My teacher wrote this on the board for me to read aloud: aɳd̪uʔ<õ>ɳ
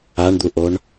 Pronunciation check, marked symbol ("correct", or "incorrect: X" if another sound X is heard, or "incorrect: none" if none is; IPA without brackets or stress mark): incorrect: o